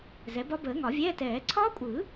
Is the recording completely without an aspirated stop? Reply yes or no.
no